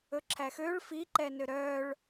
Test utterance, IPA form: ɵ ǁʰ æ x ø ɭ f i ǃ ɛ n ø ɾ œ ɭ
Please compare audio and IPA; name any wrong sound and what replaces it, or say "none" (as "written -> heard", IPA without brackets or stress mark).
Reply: none